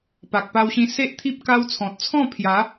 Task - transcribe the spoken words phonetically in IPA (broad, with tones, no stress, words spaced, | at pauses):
pa˨k̚pa˧wɕĩ˧ se˦ʔt̪ʰi˦p̚ ka˦wt͡sʰɔ̃˨t̚ t͡sʰɔ̃˥˧pʰja˨˦